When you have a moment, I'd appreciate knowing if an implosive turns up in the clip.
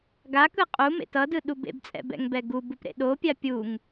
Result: yes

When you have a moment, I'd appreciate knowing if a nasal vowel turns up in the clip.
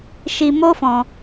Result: yes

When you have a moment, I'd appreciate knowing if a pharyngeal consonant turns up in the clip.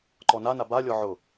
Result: yes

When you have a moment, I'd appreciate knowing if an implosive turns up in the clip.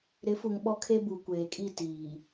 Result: yes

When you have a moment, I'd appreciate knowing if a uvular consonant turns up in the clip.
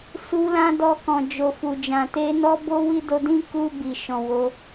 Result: no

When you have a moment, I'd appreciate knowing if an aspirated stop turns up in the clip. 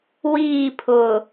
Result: yes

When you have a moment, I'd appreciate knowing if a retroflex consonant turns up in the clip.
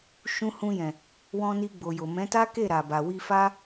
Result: no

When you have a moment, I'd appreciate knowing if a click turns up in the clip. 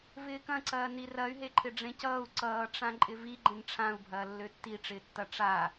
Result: yes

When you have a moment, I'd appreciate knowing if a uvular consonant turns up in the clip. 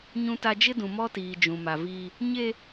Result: no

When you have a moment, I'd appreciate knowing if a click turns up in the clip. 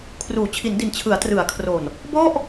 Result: no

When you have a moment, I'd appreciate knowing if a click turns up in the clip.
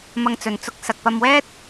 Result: no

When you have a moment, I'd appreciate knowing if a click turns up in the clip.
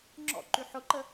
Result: yes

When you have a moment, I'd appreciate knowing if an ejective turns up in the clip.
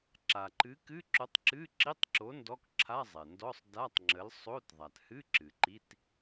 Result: no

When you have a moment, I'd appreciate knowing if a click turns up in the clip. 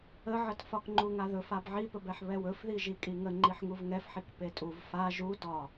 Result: yes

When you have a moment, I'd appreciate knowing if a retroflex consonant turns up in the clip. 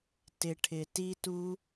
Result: yes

